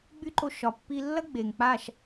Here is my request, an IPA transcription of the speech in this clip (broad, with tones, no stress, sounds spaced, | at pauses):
ɡ͡b y˦ ǃ o˧ ʃ ɒ˨ pː i˧ lː ɐ˦ ɡ͡b e˨ ŋ k͡p a˦˨ ʃ